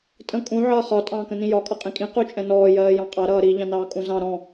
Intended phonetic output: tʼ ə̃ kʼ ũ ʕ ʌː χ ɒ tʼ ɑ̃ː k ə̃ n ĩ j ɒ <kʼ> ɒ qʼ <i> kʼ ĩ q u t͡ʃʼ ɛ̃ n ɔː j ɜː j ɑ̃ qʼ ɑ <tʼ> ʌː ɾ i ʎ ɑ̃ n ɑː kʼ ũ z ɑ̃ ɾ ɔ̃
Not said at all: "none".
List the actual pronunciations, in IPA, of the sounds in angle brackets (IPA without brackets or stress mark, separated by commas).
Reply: kʼ, ĩ, ɾ